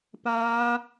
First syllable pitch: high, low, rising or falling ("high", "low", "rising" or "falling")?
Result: high